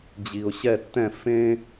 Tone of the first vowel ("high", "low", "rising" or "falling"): low